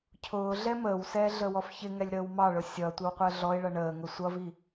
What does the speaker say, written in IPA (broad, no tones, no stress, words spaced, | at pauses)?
cʰʊː ɮɛməːwsɛː ɮəwɔfçɪŋɛlʲ ɾəːwmɑɭʊ sʲʌ tʷɪwqʷəːɮɔɪ̯ɭʌ ɳəː ŋʊsʷʌvi